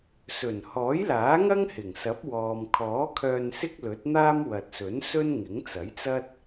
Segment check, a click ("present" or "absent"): absent